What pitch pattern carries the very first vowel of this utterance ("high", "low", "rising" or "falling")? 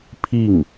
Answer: falling